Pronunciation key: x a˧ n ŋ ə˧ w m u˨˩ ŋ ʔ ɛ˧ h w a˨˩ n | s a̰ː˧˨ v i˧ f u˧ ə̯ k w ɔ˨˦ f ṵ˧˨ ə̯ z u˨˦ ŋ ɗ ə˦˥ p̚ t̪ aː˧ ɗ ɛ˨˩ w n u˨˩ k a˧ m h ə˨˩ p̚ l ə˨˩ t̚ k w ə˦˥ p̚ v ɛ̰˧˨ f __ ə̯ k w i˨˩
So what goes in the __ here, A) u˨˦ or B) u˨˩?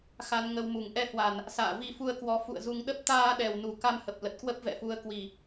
A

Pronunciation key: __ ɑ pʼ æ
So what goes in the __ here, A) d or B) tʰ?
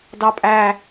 A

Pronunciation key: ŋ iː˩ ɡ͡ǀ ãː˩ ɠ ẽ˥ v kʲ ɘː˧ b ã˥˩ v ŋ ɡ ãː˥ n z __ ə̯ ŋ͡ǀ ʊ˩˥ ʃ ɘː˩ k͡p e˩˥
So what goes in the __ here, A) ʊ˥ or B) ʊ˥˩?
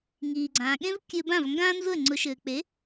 B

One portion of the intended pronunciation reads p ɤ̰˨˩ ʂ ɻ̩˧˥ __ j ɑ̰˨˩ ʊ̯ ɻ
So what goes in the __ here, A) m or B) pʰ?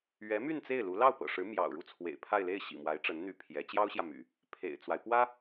A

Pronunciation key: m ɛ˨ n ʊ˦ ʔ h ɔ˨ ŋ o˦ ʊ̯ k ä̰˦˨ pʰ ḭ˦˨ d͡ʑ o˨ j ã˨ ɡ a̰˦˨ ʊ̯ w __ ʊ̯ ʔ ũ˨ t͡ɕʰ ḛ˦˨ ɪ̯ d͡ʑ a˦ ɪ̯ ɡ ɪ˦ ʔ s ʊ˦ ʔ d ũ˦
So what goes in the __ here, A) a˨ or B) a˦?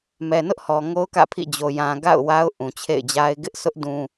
B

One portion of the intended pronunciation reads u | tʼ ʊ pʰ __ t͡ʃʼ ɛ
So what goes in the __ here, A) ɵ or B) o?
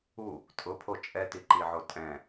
B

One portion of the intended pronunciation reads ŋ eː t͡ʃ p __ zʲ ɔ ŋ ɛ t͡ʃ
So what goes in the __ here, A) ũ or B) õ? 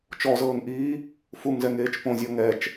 B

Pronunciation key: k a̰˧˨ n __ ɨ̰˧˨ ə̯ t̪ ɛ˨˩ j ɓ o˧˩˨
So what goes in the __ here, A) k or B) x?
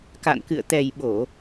A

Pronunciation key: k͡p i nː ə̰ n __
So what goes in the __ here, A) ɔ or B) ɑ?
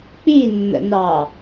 B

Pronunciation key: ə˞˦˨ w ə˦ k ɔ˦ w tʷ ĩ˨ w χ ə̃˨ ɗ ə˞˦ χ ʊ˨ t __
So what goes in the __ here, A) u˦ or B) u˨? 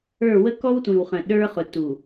B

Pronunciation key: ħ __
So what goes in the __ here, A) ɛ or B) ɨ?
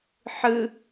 B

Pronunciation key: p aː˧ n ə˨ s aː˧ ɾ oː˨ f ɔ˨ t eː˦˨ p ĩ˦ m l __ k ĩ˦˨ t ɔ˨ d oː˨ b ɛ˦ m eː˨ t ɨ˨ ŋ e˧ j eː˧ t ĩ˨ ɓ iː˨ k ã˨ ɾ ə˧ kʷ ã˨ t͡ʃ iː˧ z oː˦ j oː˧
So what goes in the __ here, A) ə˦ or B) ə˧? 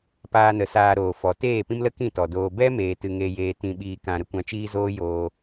A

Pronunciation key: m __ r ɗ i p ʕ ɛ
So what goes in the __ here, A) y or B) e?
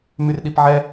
A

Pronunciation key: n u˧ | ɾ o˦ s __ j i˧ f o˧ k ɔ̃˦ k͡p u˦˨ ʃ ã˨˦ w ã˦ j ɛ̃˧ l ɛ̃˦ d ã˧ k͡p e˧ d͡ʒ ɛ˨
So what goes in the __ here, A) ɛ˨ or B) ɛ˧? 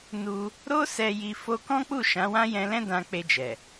B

